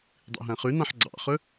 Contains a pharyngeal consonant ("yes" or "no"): yes